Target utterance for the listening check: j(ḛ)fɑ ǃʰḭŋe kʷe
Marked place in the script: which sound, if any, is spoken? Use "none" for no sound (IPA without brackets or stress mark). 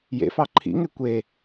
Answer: ḛ